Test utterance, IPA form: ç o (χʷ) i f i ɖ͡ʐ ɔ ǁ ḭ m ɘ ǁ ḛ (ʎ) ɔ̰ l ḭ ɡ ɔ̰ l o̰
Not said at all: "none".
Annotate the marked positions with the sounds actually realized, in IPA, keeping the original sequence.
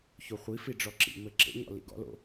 χʷ, ɲ

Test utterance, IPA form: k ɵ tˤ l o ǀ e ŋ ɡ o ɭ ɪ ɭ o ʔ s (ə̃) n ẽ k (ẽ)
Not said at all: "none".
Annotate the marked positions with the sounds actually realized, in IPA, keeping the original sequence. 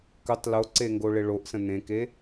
ə̃, e

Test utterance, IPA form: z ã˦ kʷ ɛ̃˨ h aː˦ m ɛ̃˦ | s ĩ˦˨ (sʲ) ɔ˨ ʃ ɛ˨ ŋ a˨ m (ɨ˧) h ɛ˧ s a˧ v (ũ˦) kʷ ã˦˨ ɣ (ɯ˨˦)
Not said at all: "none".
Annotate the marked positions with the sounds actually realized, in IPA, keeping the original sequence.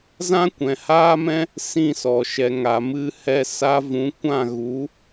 s, ɨ˧, ũ˨˦, u˨˦

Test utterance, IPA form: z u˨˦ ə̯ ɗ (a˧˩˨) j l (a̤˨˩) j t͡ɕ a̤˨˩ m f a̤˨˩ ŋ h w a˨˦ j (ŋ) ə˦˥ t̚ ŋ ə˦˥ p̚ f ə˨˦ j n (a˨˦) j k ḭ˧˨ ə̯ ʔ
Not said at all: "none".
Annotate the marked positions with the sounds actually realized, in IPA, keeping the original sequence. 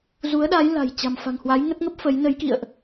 a˨˦, a̤˨˩, ŋ, ə˨˦

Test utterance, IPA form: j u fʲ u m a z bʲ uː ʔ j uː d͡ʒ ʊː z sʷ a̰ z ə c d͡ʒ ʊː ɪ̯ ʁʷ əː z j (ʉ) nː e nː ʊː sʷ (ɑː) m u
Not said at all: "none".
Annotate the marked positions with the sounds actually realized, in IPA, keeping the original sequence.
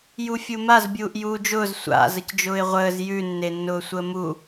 ʉ, əː

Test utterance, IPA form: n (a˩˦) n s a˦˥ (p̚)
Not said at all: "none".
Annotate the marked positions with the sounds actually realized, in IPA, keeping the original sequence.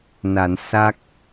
a˩˦, k̚

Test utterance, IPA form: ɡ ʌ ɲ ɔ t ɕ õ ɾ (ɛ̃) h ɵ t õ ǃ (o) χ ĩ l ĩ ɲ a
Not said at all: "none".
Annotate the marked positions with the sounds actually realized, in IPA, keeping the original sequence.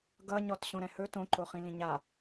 ɛ̃, o

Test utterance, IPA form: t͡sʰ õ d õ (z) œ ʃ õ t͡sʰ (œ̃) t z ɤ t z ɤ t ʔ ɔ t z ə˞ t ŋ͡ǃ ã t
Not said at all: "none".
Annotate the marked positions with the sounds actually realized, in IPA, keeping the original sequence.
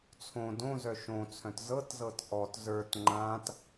z, œ̃

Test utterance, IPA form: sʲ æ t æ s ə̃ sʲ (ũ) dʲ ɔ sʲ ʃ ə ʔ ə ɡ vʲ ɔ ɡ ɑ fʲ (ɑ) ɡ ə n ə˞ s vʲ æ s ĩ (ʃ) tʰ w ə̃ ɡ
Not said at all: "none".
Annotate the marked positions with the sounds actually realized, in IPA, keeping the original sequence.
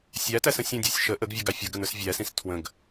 ũ, ʌ, s

